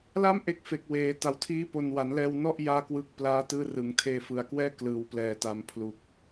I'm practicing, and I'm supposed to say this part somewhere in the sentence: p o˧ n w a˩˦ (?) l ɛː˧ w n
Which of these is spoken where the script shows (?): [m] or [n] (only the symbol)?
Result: n